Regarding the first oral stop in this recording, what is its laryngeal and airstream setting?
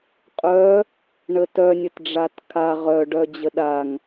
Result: ejective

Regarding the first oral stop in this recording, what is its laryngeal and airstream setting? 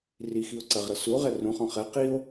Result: click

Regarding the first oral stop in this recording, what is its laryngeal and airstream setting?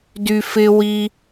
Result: plain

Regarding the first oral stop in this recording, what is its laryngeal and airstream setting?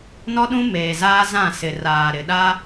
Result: implosive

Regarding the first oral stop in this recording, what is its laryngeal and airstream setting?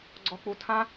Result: click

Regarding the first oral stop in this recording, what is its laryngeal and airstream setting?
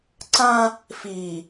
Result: click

